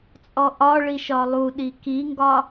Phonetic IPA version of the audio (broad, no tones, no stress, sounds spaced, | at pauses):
t͡sʼ ɔ ʔ ɒ ɭ i ʃ ɒ lˠ u ɗ i k i ŋ ɡ ɒ